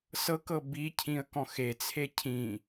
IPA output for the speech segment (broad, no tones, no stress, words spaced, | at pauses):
sɤkɤ bicʰĩə̯kɔ̃x et͡sʰe cʰĩ